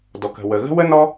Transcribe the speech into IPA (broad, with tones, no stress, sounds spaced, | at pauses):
d ɔ˩ k ə̤˩ w ə˩ ɣ ə̤˥ w ə˥ n ɔ˥